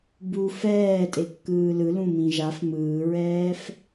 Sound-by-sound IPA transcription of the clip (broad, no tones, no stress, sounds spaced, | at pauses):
b u f ɛː tʼ e kː ɯː l ɯ l ũ m ĩ ʒ a f m ɯː ɹ ɛː f